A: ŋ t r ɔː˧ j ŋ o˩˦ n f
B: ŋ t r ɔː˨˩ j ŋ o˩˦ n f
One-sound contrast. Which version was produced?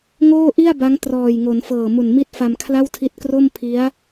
B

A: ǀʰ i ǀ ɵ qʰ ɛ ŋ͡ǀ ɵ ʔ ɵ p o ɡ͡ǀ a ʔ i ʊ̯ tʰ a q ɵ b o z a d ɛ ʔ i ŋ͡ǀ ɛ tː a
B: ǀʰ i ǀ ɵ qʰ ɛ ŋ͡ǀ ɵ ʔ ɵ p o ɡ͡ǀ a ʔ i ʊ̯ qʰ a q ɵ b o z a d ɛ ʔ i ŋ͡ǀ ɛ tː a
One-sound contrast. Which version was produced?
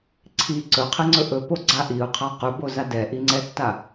B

